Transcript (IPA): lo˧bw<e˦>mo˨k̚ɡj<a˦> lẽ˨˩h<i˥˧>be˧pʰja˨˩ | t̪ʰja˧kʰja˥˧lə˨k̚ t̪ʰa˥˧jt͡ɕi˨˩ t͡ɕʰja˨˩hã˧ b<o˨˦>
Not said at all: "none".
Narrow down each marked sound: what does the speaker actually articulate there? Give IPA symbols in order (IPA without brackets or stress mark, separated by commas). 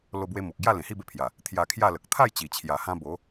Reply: e˧, a˥˧, i˥˧, o˨˦